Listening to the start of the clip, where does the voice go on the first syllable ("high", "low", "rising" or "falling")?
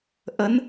rising